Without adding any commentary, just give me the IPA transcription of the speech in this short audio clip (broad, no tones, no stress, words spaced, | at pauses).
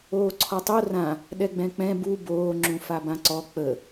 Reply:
oːǀʰɔtˤo rã | ɗɛɡ͡bɛ̃k͡pɛ̃ bu boː ŋ͡ǁũfabãǀɔ k͡pə